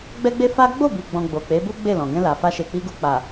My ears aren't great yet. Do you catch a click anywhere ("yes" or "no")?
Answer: no